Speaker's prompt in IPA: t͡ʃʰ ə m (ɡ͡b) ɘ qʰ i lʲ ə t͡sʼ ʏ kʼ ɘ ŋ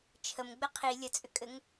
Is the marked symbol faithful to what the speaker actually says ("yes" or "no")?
yes